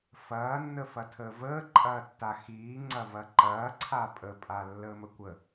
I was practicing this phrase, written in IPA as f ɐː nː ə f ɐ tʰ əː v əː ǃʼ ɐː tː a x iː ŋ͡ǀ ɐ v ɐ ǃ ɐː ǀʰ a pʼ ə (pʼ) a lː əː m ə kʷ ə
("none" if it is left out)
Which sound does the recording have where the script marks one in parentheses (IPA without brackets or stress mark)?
pʼ